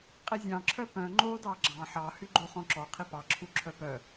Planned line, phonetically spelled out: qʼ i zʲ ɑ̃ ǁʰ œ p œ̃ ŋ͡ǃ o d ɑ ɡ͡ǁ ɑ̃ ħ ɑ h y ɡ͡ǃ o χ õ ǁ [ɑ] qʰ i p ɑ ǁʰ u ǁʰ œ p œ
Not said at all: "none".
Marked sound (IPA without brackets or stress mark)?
ɔ